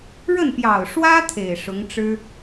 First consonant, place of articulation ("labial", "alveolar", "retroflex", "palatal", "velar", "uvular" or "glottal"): retroflex